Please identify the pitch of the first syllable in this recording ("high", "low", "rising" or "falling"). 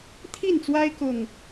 falling